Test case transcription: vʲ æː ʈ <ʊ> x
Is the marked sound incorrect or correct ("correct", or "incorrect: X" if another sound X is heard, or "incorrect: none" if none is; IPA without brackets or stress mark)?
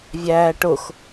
correct